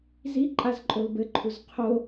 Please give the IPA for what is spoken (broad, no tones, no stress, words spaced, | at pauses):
zi ǃʼazǃʼolbɘǃʰuz qʰo